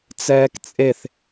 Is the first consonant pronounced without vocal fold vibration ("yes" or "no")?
yes